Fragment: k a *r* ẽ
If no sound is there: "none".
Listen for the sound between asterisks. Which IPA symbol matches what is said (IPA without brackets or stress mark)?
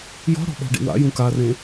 r